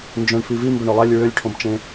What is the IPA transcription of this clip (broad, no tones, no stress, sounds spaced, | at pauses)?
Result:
n d͡ʒ œ̃ ɳ f i v i m b œ ɳ ø lˠ ɛ lʲ ɹ ø lʲ ʈʰ õ b t͡ʃ ẽ